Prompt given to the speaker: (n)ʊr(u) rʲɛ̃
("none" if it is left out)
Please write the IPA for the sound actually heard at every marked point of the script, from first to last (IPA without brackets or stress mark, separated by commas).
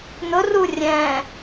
n, u